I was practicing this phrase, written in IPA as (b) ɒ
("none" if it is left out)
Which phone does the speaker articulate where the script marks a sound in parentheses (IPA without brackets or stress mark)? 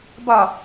b